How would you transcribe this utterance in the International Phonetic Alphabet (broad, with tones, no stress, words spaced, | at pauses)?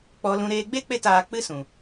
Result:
k͡pɔ˧lũ˧ ɾeː˧ɡ͡be˦k͡pe˦˨t aː˧k͡pɨ˦ sũ˨